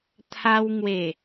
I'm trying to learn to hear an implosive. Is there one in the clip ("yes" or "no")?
no